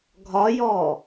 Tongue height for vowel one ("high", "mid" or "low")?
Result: low